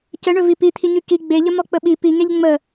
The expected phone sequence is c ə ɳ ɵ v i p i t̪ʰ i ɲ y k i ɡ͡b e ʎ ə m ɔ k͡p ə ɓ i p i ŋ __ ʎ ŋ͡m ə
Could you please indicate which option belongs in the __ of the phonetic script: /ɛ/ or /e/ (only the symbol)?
e